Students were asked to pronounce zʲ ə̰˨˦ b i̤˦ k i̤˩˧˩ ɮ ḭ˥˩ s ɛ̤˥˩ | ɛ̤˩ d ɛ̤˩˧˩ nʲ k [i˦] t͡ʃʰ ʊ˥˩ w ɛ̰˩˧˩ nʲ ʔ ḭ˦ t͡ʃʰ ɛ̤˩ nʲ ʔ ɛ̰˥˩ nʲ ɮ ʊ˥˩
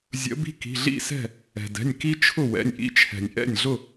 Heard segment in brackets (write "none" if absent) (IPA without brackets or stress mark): i˦